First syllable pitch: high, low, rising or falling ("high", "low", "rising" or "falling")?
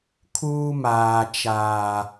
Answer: high